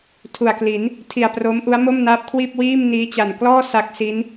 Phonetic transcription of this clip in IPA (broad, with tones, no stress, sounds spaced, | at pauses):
tʰ u˨˩ a̯ k l i˩˦ n | tʰ i˨˩ a̯ p r o˦˥ m ʔ u˦˥ a̯ m o˥˩ m n aː˦˥ p̚ kʰ w iː˥˩ p̚ w iː˥˩ m n iː˦˥ t͡ɕ a˨˩ n k l ɔː˥˩ s a˦˥ k̚ s i˦˥ n